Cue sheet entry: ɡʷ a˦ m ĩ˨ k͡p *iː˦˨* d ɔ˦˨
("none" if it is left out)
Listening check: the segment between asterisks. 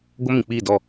iː˦˨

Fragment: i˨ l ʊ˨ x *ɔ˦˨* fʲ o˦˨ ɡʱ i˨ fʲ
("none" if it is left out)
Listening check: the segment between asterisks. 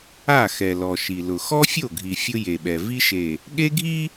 ɔ˦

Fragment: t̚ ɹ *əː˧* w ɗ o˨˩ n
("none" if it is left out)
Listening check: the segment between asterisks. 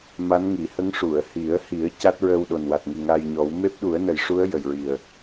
əː˧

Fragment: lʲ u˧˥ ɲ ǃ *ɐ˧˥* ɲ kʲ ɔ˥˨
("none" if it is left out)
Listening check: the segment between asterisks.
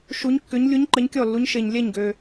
ɐ˧˥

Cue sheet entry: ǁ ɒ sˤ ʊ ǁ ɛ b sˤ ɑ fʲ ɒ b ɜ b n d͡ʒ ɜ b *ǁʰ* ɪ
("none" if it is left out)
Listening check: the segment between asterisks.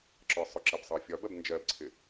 ǀʰ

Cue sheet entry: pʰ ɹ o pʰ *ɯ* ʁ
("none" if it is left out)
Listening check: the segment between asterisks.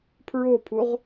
u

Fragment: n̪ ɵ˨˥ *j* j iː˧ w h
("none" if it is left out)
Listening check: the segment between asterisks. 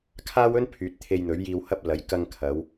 ɥ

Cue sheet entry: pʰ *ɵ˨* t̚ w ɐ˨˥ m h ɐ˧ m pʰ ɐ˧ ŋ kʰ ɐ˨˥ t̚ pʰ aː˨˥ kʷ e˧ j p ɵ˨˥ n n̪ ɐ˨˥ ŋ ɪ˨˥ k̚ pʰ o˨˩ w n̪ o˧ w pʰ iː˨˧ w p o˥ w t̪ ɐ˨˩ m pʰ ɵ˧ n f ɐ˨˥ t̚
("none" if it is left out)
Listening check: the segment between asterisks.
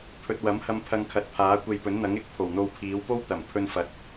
ɵ˨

